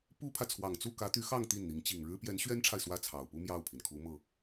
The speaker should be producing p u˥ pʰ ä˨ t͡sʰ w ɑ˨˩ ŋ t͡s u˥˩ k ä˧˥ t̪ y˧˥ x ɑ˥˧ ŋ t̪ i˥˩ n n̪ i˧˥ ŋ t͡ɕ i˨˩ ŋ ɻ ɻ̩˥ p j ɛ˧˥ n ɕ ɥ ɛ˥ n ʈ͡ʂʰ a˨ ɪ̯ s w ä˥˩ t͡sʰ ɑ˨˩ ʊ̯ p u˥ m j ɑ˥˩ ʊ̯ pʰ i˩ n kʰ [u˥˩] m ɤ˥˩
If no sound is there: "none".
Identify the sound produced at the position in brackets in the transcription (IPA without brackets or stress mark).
u˧˥